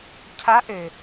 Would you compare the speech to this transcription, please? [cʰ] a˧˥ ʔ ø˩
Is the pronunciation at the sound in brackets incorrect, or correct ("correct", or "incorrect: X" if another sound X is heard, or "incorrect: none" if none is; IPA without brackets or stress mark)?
correct